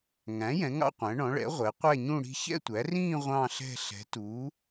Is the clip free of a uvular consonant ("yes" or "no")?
no